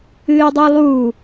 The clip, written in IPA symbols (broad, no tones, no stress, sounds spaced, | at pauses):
ɨː i̯ dˤ o lˠ uː